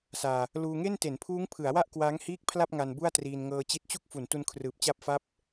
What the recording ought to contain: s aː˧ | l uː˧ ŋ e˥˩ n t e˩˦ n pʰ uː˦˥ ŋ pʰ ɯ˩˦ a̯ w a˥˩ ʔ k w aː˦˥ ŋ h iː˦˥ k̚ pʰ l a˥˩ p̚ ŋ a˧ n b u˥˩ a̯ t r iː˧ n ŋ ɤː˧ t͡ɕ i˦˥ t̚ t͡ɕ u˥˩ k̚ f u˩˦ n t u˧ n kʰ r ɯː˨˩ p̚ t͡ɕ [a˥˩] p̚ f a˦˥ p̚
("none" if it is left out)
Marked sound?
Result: a˦˥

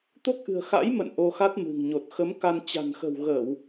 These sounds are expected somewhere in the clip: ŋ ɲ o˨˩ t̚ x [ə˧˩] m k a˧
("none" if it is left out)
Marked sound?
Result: ə˨˦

